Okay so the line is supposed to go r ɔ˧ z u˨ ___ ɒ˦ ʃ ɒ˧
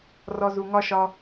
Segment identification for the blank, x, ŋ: ŋ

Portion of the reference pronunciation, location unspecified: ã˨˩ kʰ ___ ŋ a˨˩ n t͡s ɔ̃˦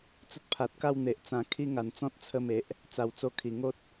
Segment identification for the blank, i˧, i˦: i˦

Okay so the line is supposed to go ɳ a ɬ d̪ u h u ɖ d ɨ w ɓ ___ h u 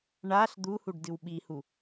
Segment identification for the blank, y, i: i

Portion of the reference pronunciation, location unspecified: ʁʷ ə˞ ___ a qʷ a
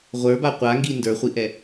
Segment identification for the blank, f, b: b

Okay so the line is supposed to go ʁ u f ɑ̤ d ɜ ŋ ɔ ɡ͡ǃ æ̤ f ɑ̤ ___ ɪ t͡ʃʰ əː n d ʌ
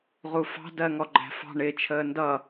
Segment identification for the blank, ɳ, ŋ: ɳ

